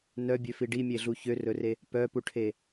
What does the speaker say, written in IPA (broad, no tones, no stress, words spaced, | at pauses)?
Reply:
nœbʲøfi ɖimʲeɮu çørɵre | pœpuʈʰe